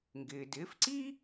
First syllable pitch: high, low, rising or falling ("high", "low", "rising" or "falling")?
low